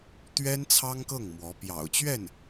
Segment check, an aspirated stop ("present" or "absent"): present